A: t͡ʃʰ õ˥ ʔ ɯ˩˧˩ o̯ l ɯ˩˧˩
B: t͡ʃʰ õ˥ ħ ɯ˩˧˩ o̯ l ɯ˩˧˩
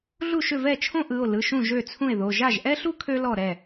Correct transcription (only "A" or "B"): A